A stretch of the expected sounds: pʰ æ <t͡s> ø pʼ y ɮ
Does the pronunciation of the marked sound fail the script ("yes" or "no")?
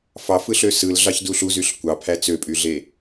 no